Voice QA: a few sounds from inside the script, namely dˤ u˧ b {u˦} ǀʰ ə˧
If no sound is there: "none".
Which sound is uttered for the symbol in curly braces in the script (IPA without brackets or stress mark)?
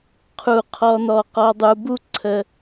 u˦